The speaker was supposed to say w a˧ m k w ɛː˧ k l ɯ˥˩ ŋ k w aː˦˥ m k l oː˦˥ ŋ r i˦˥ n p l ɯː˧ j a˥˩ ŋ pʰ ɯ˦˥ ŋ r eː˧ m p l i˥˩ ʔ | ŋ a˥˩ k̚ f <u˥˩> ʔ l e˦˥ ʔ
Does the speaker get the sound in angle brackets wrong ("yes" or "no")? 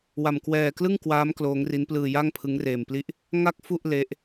no